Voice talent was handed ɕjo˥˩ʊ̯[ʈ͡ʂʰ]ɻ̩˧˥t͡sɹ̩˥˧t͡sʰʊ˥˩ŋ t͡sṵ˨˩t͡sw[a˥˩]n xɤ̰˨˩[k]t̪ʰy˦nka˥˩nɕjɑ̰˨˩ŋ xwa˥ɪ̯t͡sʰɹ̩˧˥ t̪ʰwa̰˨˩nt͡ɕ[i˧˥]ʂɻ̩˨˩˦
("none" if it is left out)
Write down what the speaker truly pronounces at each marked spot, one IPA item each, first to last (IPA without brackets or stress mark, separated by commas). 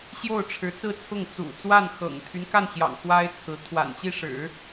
ʈ͡ʂʰ, a˥˩, ŋ, i˥˩